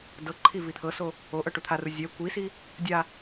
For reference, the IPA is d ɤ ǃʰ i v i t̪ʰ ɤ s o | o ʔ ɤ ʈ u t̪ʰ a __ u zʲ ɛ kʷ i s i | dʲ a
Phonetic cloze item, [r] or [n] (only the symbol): r